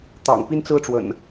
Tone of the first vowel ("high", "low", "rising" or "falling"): low